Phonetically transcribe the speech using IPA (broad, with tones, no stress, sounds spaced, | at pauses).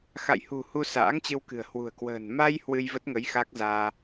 x a̰˧˨ j h ṳ˨˩ h u˧ s a̰ː˧˥ ŋ t͡ɕ ɨ˧ w k ɨ̤˨˩ ə̯ h w ṳ˨˩ ə̯ k w ə̤ː˨˩ n m a˧ j h w ɨ˧ j v ə˦˥ t̚ ŋ ə˨˦ j x a˦˥ k̚ z aː˧